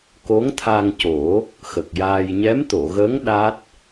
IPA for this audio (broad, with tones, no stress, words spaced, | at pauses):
ko˧˥ŋt̪ʰa˧ŋco˨˩˦ | xə˨˩k̚jaː˧j ɲɛ˧˥mt̪o˨˩˨ɣə˧˥ŋ ɗa˦˥t̚